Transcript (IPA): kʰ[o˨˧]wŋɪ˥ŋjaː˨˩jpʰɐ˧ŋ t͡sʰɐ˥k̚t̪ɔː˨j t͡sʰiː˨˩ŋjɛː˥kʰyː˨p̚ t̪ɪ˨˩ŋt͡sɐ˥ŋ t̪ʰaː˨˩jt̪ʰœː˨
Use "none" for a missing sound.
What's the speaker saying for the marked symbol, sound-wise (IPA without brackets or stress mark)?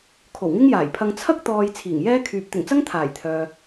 o˨˩